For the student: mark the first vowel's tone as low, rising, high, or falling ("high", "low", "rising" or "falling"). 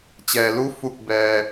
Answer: low